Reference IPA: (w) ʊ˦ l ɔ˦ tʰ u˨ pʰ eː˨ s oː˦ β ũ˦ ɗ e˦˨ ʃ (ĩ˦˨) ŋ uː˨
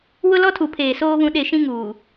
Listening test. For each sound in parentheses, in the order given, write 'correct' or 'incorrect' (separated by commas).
correct, incorrect